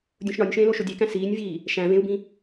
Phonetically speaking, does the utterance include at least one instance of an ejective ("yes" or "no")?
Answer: no